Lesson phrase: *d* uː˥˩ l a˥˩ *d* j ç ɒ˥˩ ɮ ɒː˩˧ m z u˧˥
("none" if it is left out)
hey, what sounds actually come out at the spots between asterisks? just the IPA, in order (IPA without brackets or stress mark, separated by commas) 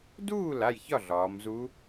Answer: d, none